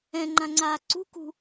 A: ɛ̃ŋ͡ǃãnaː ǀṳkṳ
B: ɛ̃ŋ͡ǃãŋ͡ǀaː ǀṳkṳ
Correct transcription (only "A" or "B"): B